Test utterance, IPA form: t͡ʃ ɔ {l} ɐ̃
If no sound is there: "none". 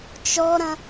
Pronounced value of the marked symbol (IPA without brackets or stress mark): ɾ